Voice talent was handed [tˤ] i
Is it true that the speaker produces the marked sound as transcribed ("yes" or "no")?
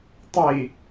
yes